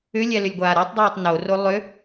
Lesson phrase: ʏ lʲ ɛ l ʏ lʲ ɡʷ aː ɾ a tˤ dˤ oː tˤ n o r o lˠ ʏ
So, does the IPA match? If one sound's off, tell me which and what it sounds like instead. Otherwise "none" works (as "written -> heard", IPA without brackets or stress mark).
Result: none